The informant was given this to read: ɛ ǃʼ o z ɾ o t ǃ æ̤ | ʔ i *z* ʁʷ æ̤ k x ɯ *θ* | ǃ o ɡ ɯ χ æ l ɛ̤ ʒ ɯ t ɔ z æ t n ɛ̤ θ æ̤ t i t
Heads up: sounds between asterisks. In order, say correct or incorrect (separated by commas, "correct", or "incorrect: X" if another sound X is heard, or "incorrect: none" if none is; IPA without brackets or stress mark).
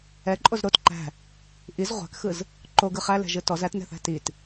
correct, incorrect: z